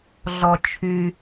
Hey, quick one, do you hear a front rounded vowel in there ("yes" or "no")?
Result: yes